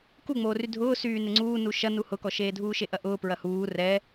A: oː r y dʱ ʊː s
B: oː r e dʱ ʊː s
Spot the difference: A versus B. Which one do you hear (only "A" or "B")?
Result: A